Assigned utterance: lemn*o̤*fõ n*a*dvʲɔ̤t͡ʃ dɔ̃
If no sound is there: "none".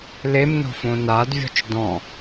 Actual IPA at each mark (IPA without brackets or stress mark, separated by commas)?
o̤, a